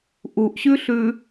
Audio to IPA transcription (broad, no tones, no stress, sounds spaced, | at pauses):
ʔ u ʔ ɕ ʉ ɬ ʉ